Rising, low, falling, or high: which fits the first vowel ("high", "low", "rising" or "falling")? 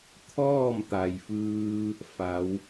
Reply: falling